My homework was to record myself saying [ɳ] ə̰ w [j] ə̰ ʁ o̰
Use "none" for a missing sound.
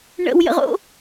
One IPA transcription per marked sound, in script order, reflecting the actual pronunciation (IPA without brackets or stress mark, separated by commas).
ɳ, j